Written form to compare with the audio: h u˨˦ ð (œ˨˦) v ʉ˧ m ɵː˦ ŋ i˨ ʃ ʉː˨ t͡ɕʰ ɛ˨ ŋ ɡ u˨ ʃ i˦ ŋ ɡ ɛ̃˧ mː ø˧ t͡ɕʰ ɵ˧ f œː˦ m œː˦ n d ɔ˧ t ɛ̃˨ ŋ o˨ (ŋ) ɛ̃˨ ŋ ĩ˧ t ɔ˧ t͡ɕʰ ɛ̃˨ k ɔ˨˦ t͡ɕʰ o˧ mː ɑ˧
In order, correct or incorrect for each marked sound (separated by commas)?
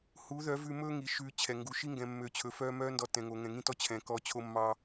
correct, correct